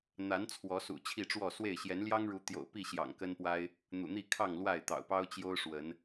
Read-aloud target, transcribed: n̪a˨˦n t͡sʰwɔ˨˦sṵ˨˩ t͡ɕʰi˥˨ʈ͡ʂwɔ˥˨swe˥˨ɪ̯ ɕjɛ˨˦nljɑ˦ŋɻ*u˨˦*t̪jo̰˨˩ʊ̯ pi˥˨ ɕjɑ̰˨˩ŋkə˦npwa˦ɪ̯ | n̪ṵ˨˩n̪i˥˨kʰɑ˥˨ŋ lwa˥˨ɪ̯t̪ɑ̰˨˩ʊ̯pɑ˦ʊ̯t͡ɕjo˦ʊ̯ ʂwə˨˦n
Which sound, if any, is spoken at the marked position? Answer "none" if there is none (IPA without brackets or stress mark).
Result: u˨˦